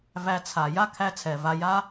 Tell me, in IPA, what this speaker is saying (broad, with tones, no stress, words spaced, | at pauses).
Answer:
væ˧t͡sʰa˨ ja˦kʰæ˧ t͡sʰɛ˨va˧ ja˦